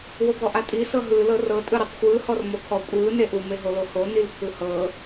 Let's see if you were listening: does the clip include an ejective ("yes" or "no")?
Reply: yes